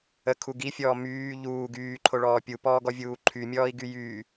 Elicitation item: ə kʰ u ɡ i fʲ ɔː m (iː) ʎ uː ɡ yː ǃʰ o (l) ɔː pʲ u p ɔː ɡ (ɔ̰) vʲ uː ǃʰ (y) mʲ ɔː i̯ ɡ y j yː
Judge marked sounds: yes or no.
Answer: no, no, no, yes

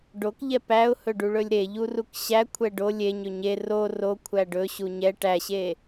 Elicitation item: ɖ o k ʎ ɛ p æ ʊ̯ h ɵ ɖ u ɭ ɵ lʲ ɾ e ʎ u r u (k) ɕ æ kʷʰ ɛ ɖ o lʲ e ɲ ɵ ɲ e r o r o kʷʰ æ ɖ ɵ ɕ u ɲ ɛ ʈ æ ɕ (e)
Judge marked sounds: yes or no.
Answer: yes, yes

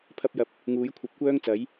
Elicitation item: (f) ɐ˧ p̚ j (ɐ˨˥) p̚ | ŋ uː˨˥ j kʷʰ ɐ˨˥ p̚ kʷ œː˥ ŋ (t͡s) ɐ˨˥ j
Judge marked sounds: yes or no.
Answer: no, yes, yes

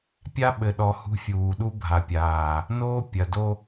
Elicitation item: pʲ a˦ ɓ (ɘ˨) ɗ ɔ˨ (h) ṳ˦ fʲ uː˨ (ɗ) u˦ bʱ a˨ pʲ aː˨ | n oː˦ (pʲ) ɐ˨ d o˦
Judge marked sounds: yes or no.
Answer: yes, yes, yes, yes

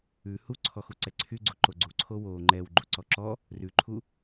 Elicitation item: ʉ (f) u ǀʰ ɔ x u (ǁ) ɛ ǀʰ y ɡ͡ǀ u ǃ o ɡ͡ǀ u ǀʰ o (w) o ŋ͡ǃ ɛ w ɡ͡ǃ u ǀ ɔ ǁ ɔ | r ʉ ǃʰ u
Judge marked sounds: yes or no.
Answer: no, no, yes

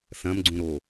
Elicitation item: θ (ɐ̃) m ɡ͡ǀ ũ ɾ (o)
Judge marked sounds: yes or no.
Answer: yes, yes

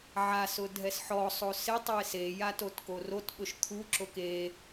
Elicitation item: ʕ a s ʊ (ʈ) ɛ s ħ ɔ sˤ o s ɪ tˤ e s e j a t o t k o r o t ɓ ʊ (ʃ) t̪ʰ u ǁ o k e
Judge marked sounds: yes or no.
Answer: no, yes

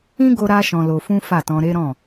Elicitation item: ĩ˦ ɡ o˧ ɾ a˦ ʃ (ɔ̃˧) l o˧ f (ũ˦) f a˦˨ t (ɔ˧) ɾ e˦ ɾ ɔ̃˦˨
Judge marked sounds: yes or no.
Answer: yes, yes, no

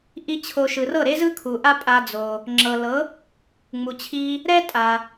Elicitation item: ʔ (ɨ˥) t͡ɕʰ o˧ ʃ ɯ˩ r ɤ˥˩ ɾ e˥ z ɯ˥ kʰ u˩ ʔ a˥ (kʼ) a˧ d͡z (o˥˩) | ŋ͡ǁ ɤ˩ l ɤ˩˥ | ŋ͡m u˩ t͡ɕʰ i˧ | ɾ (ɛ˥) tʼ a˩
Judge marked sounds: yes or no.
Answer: no, no, no, yes

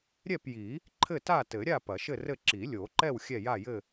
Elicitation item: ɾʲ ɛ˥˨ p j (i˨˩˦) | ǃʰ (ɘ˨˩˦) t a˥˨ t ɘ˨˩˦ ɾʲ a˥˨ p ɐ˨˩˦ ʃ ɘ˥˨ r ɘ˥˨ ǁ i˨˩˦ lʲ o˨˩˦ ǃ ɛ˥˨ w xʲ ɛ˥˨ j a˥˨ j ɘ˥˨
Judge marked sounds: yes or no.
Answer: yes, no

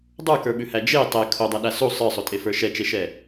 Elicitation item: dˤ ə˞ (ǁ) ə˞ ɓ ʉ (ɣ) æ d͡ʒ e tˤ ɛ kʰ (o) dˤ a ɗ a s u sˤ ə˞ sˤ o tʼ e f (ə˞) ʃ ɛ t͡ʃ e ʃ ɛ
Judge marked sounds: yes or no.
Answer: no, no, yes, yes

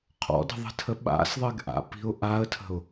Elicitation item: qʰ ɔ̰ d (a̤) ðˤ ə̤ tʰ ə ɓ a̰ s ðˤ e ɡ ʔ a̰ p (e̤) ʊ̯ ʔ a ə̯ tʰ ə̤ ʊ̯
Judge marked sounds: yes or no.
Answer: no, no

